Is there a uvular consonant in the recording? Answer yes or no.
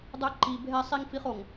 yes